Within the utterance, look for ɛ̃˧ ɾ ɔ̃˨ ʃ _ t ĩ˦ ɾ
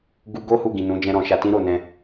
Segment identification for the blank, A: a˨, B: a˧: B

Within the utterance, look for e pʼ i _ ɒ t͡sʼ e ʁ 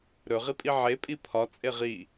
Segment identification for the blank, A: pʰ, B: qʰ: A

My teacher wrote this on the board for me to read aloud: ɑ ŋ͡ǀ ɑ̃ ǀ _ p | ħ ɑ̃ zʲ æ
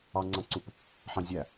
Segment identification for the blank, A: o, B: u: B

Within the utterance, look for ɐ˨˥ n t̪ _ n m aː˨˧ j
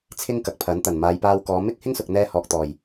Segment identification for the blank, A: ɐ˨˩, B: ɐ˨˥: A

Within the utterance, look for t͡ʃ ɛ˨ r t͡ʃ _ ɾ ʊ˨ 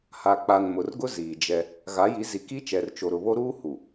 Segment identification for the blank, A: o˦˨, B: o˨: B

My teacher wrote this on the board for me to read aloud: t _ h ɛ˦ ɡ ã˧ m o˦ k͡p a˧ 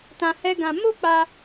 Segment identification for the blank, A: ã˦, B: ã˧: B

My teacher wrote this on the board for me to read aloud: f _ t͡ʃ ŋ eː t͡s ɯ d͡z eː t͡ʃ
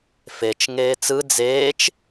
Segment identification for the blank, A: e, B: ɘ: A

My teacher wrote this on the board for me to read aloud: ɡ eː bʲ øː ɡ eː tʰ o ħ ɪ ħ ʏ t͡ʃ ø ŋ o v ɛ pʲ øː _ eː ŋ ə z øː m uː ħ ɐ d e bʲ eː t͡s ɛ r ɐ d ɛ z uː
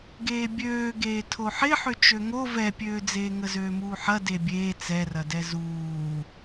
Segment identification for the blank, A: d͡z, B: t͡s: A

